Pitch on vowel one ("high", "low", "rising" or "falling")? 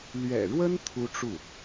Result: low